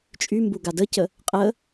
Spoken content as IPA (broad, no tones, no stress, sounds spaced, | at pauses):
t͡ʃʼ y m b u ɡ a d ə c ə | qʼ ə